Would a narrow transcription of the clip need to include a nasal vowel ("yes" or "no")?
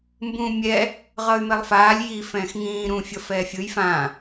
yes